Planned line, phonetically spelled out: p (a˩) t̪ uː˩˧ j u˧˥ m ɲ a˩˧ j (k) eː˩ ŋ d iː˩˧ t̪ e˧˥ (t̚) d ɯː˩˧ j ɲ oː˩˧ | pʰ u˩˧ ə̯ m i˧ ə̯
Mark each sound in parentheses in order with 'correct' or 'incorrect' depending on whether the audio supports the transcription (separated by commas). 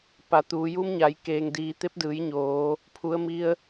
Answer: incorrect, correct, incorrect